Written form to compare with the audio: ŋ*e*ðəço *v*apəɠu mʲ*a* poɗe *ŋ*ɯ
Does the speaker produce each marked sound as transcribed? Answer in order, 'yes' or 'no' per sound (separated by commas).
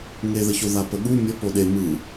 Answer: yes, no, no, no